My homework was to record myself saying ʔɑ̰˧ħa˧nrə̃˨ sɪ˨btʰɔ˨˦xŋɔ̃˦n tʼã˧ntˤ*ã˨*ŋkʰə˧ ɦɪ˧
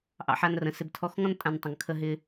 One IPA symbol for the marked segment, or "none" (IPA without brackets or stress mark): ə̃˨